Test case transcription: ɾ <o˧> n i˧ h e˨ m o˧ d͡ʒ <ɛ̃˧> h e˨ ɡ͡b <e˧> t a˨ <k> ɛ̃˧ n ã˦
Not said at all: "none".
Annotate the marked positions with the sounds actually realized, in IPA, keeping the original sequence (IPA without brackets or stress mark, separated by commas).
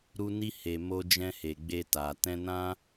u˧, ɛ̃˧, e˧, t